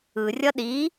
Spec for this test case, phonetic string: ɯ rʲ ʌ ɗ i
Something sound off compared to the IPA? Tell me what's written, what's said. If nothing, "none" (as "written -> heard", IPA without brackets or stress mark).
none